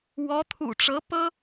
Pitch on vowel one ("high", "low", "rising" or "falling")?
rising